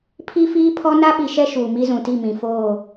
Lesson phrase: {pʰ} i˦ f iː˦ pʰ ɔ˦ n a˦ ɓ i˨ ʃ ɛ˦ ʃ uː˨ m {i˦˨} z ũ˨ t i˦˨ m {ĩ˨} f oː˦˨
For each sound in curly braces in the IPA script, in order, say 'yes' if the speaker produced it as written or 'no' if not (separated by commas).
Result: yes, no, yes